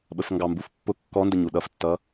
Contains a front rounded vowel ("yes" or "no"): no